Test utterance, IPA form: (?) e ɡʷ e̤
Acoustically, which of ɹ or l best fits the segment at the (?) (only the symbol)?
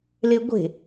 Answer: l